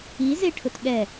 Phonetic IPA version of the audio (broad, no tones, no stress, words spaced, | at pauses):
izeʈʰʊt ɠɛ